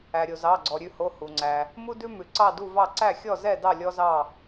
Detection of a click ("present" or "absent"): present